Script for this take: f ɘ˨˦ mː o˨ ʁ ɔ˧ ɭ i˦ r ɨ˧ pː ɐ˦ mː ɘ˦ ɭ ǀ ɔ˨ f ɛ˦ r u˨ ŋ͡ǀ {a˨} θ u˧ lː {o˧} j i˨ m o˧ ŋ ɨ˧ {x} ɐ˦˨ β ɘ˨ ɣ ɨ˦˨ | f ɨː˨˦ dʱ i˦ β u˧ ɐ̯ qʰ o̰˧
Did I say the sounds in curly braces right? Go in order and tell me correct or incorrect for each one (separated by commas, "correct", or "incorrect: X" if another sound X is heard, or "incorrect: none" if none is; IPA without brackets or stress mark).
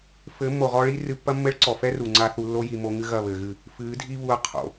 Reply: incorrect: a˧, incorrect: o˦, incorrect: ɣ